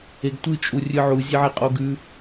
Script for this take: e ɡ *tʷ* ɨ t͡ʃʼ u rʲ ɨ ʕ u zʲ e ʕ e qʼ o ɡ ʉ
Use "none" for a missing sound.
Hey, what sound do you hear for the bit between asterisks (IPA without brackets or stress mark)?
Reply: tʷ